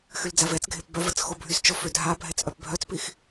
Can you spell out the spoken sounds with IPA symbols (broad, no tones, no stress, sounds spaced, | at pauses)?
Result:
x y l d͡z a v ɛ t͡s ɡʱ e p b œ v ə t͡s x o bʱ y s t͡ʃ ɔ f ø dʱ a bʱ ɛ t͡s ʔ œ p bʱ œ t͡s p i x